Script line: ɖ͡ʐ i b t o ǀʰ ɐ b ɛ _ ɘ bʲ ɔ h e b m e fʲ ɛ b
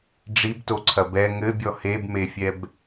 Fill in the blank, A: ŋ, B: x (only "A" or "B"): A